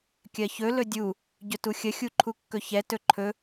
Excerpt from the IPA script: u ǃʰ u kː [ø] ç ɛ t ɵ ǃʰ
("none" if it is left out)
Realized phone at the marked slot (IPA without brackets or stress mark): ɵ